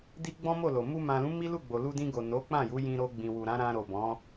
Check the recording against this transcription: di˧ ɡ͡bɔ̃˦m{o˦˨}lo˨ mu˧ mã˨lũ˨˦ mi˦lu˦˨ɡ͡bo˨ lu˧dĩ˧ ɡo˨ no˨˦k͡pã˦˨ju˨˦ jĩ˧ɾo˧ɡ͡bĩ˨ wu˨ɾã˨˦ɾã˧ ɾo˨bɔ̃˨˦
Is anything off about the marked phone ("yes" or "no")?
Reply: no